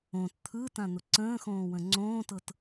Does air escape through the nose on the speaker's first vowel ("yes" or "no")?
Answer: yes